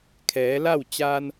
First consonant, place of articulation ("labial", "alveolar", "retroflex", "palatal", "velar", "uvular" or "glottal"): velar